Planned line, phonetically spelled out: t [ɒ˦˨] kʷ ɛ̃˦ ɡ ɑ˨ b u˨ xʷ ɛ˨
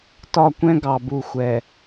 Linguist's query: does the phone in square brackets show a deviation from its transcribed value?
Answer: no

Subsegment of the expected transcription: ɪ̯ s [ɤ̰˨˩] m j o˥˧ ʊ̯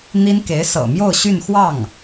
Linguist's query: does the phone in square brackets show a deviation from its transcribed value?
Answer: no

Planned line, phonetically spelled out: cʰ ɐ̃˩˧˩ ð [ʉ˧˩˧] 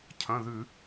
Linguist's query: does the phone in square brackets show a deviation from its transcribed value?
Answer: no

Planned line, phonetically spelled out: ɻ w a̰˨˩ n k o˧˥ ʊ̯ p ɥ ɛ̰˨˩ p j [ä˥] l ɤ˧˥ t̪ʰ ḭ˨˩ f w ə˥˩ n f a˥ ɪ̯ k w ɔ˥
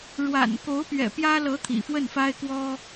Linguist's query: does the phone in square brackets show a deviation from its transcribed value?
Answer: no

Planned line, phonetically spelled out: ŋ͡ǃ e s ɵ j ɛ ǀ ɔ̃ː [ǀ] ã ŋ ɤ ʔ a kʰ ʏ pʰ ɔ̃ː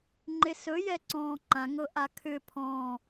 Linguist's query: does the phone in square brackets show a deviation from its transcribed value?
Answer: yes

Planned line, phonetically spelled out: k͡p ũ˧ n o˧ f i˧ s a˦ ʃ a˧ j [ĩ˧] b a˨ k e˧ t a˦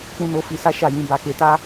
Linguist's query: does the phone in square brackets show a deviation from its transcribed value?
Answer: no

